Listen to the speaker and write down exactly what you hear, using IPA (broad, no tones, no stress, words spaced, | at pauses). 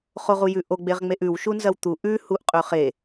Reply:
χoʁujʉʔo ɡ͡beʁŋ͡meʔʉw ʃunzɐwt̪u ʔʉ huʔqʼɵχe